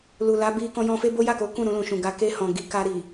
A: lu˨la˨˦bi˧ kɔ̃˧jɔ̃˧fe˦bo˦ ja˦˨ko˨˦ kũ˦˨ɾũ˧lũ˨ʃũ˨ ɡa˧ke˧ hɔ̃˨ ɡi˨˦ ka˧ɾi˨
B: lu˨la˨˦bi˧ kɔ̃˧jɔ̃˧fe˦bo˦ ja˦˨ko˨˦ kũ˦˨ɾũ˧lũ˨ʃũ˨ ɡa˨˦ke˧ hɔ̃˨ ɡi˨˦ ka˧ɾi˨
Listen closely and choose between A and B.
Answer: B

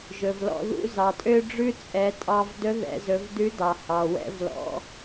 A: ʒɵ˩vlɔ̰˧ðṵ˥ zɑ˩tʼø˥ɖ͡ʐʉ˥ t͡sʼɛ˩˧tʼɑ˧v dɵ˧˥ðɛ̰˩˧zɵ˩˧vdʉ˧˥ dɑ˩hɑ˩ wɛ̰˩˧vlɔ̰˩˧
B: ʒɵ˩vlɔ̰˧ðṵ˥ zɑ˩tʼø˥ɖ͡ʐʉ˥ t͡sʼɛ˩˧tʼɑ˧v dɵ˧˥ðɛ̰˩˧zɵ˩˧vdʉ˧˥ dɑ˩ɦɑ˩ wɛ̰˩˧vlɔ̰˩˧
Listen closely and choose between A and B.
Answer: A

